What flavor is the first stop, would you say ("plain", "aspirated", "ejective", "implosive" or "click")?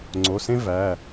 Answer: click